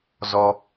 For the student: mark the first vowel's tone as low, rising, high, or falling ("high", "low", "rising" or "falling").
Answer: high